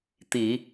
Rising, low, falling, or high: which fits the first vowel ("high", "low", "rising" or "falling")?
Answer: low